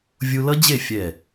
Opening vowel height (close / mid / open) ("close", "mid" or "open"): close